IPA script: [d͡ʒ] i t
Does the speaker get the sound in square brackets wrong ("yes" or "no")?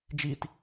no